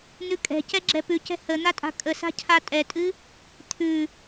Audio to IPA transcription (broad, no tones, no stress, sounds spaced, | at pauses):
n̪ ʉ kʼ ɛ̤ c ɛ ɡ͡ǁ ɛ p ʉ c ɛ̤ h ə n̪ a tʼ a̤ kʼ ə s a̤ cʰ a tʼ ɛ tʼ ɨ | t̪ʰ ʉ